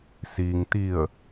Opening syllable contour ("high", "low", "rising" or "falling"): low